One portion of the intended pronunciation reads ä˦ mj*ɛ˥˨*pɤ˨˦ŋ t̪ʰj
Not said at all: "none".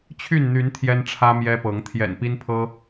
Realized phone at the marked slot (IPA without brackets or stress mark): ɛ˦